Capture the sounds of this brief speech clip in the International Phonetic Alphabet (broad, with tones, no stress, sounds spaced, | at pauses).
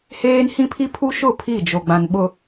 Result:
h eː˦ n h ĩ˦ pʰ i˦ pʰ u˦ ʃ ʊ˦˨ pʰ i˦˨ d͡ʒ o˨ ɡ͡b ã˨ n ɓ ʊ˨